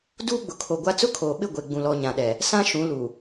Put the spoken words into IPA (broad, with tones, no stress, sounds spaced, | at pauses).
d uː˦ ɡ͡b ʊ˨ kʰ o˨ ɡʷ a˦ t͡s ʊ˦ kʰ oː˨ ɓ ɪ˦˨ ɡʷ e˨ ɡ͡b ũ˨ l ɔ˨ ɲ ã˨ ɗ ɛ˨ | s ã˦ ʃ ũ˨˦ l u˨